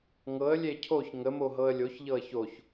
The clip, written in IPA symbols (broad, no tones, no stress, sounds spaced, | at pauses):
ŋ ɤ ə̯ lʲ e cʰ o ç ŋ ə m o ɦ ɤ ə̯ lʲ o ç ʎ ɤ ə̯ ç o ç